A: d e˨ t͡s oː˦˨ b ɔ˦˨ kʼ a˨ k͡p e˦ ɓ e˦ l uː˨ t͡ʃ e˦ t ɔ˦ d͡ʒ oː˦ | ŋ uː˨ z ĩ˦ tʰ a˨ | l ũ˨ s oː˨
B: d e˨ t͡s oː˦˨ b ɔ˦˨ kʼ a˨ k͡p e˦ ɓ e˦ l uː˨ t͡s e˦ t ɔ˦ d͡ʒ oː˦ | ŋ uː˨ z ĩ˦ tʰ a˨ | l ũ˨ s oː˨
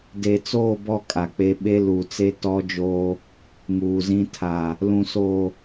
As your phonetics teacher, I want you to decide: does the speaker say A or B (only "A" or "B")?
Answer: B